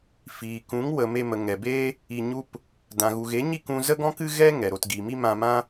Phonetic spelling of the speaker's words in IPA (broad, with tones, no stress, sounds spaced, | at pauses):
f iː˨ k ũ˨˦ ŋ w ə˨ m e˧ m ə˨ ŋ ɛ˨ b e˦ | i˧ ɲ u˦ p | d ã˨ ɣ u˨ ɣ e˨˦ ɲ i˦˨ k ũ˧ z ə˦ ɡ ɔ̃˦ k ɨ˦ ɣ ɛ˦ ŋ ɛ˨ ɾ o˧ t ɡ i˨ m i˦ m ã˧ m ã˦